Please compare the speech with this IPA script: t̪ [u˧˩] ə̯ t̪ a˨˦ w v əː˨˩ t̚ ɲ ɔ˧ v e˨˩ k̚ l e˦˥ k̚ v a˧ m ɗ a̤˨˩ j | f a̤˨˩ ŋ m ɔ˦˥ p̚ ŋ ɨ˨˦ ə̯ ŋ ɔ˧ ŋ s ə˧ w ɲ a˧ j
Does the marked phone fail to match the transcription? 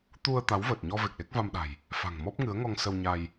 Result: yes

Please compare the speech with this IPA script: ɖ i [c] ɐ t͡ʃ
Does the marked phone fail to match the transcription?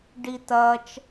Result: yes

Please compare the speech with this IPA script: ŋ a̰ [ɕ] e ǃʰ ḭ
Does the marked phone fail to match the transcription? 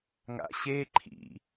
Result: no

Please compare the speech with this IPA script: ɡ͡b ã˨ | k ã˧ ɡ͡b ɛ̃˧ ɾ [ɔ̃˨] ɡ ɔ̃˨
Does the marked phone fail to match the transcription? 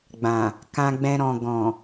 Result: no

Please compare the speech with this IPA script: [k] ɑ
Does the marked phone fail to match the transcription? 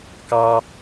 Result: no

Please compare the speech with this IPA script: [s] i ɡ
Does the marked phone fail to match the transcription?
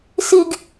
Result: no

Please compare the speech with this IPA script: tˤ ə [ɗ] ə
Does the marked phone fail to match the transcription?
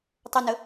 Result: yes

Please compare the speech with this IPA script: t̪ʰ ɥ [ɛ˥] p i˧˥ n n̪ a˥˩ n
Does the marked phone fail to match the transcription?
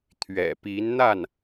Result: yes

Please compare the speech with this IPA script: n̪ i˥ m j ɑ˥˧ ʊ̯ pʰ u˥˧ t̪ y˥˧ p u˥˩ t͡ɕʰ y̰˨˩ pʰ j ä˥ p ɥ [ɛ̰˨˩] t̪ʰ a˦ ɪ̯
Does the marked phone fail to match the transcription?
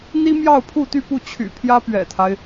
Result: no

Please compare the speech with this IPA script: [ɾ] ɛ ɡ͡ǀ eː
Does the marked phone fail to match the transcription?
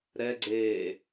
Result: no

